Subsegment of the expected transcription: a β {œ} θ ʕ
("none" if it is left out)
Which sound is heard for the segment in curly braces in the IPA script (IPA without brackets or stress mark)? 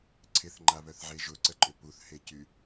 œ